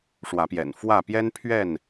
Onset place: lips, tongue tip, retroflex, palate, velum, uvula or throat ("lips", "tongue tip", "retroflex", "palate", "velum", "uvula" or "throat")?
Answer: retroflex